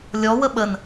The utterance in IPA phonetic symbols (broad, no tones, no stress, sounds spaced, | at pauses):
lʲ ɔ w ə ɓ ə n